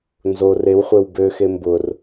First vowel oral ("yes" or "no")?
yes